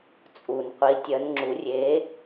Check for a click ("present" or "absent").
present